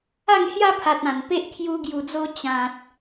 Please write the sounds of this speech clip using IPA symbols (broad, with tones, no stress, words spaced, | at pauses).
a˥˧ŋhja˦pʰa˨t̚ ã˨˩npe˦ʔ kʰju˧ ɡju˨˩d͡zo˧ t͡ɕã˨t̚